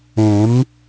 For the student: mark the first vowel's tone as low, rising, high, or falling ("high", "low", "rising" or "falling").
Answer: rising